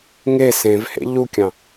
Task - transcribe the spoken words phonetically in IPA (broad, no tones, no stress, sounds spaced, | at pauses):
ŋ e s ẽ v h ḛ ʎ u kʲ ɑ̃